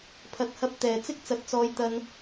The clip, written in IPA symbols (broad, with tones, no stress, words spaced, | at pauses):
pʰɐ˨t̚hɐ˧p̚ t̪ɛː˨ t͡sɪ˥k̚t͡sɐ˨˥t̚t͡sɔː˧j t̪ɐ˧n